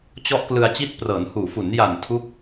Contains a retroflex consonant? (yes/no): no